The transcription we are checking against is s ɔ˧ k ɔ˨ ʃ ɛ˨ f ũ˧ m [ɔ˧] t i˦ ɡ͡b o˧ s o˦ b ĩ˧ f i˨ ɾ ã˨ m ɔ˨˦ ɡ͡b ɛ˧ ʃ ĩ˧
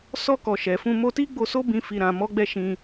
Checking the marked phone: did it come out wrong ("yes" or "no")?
yes